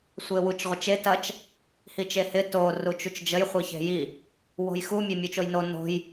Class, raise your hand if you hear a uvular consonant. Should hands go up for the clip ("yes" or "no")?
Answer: yes